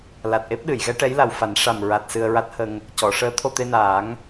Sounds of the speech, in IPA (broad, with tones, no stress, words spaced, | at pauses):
la˨˩t̚ʔe˦˥p̚ɗɨ˨˩˨jɣɛ˧˥ ʈɛ˧˥jla˨˩wfa˨˩˦n ʂa˨˩mɹa˨˩t̚ sɨ˧ə̯ɹa˦˥t̚hə˧ŋ | cɔ˨˩˨ ʂəː˧˥t̪ʰo˧t̪e˧naː˨˩˦ŋ